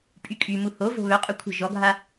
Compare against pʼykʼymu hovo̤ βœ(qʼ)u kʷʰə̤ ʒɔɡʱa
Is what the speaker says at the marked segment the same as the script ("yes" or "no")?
yes